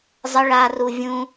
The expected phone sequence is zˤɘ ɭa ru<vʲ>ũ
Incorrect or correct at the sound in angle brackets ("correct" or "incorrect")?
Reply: correct